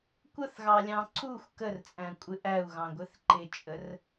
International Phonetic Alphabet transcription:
kʷəθɣɑlʲɑ̃ ǀuxʷ kərt͡sʼæ̃kʷʼɪ ʔæu̯ɣɑ̃ɡʷɪθ ǃɪt͡ʃʼər

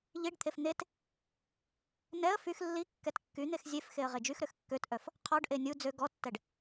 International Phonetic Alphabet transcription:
ʎiɖt̪ʰef n̪et | nɛə̯ fyx lːi kːɛtkːyn̪ex zʲefxeə̯ ʁed͡ʒyxɾøx kːøtʔœf | qʰɔɖʔe nʲu d͡zø ɡɔtːɛɖ

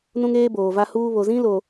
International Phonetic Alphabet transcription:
nũ˦ŋeː˦ boː˨va˦huː˦ βo˨zĩ˦ lo˨

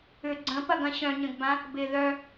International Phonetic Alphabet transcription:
ʏ ɡ͡ǀə̃pɐɡɐ̃ ɕœ̃ɲə̃ɡbã | bɪ ðœ

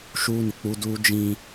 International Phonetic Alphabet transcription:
ʃuː˦nɪ˨k͡pu˦ duː˦d͡ʒĩ˦

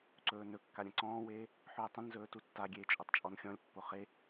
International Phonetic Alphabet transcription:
ǀɵːnɵkːa ɾʲə̃ǀɔ̃ːweː | ħɵːtˤə̃nzɵː tutːaɡʲeː t͡ʃʼotˤt͡ʃʼɔnxʲɔ̃lʲpːo χe

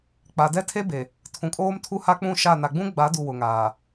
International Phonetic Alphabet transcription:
k͡pa˨dɛ˦tʰe˦be˨ | tʰũ˨kʼoː˦mtʰu˦ha˦ k͡pũ˦˨ʃa˦˨ na˨ɡ͡bũ˦ɡ͡ba˨˦du˨ wʊ˨ŋaː˨

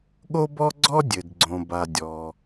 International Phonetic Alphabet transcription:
ɠo˥bɔ˥ɡ͡ǀɔ˥ dʲɘ˩dɡ͡ǀõ˩ ba˩ dʲɔ˩

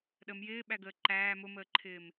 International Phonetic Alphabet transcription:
ɗəm jɪːɓæɡəː ǃæː mʊməːǃʰɪːm

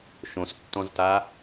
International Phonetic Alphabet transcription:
ʃõstːɔ̃zta

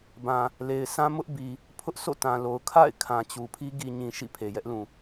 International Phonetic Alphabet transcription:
bã˨ | le˨ɪ̯sã˦ mʊ˦ʔbi˨ | pʰʊ˦ʔ sʰo̰˦˨tã˨lo˨ʊ̯ kʰa̰˦˨ɪ̯ kʰã˨t͡ɕu˨pʰi˦ ɡi˨ɲĩ˨ ʃḭ˦˨pʰe˨jɛ˦ʔlũ˨

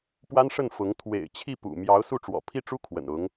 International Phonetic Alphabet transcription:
pwa˥nʂə˥˩nfʊ˧˥ŋ t̪ʰwḛ˨˩ɪ̯t͡ɕʰi˥˩pṵ˨˩ mjɑ˧˥ʊ̯su˥˩ ʈ͡ʂwɔ̰˨˩pʰi˥˩ʈ͡ʂu˥ kʰwə̰˨˩nʊ˧˥ŋ

